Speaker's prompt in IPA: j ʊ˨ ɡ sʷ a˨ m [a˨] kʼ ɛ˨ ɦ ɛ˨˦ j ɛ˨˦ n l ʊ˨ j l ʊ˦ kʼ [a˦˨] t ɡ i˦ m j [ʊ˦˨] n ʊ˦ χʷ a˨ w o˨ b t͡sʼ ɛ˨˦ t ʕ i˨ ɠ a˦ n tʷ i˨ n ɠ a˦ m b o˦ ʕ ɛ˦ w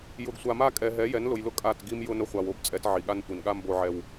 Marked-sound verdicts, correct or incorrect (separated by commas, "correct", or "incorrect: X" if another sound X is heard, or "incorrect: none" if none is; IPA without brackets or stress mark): incorrect: a˦, correct, incorrect: ʊ˦